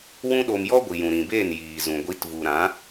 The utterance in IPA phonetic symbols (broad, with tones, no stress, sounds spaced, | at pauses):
w ũ˦ ɗ o˧ m j ɔ˦ ɡʷ i˨ j ũ˨ ɾ ĩ˨ b eː˦˨ n j iː˨ z ũ˨ ɡʷ i˨˦ t v u˨ ɾ ã˨˦